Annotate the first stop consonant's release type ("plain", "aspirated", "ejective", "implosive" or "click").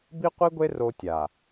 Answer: plain